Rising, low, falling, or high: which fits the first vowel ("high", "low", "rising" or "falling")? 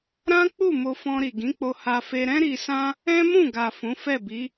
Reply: high